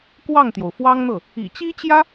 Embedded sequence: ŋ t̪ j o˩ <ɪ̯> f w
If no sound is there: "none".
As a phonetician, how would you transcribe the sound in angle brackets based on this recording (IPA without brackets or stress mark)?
ʊ̯